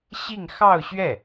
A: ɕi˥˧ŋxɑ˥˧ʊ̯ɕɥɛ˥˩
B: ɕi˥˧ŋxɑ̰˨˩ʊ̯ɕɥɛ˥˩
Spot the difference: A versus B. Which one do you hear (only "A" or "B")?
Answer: A